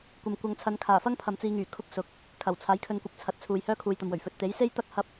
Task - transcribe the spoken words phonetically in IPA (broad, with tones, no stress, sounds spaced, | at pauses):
kʷ ɐ˨ m kʷ ɐ˨˧ ŋ t͡sʰ ɐ˨˧ n kʰ aː˨˩ f ɐ˥ ŋ pʰ ɐ˨ m t͡s iː˧ ŋ yː˨˩ kʰ ʊ˧ k̚ s ʊ˨˥ k̚ | kʰ ɐ˨˩ w t͡sʰ aː˨˥ j kʰ ɵ˧ n kʷ ɐ˧ p̚ t͡sʰ ɐ˨ t̚ t͡sʰ uː˨ j h œː˥ kʰ uː˨ j t̪ ɐ˨ m w ɵ˨˩ ɥ f ɵ˧ t̚ t̪ e˨˥ j s e˥ j t̪ ɐ˥ k̚ h ɐ˥ p̚